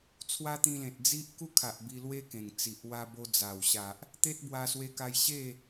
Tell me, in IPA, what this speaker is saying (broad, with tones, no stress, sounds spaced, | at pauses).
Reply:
t͡sʰ w a˦ t̪ ĩ˧ l ẽ˨ t̚ d͡z i˦ ʔ k u˥˧ kʰ a˨ ʔ b i˧ l w e˦ k ẽ˨˩ ŋ t͡s i˨ ʔ w a˧ b o˧ d͡z a˨˩ w ɕ a˨ ʔ | t̪ e˦ t̚ b w a˧ s w e˧ k a˧ j ɕ e˥˧